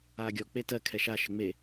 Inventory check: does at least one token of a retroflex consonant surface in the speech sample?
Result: no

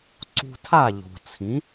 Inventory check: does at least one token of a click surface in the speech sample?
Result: yes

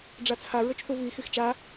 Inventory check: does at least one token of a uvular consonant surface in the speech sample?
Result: no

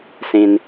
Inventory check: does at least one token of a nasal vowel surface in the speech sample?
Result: yes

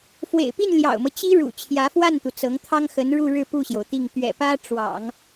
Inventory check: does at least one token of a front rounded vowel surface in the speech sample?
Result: no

